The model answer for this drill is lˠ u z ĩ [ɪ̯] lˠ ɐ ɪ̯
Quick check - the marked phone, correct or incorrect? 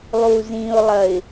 incorrect